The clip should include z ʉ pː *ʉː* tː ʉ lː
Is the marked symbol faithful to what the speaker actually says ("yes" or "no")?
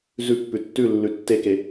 no